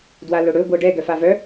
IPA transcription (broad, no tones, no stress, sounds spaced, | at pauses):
d w a l ɵ ɽ ɵ ɡʷ ɤ ɖ ɛ ɡ œ f a v œ